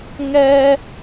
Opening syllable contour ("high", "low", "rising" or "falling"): high